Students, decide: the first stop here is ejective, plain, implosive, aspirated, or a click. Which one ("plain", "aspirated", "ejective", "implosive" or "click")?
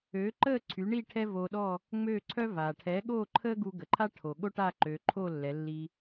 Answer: click